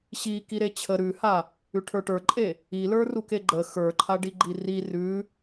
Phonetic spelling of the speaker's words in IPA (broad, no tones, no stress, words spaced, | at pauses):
ɕi kiɾet͡ɕʰə ɾʉha | ʉʈʰə˞ʈə˞ǃʼe | ilə˞ rukeɡ͡ǃə xə˞ǃʰa ɖiɡ͡ǃiri rʉ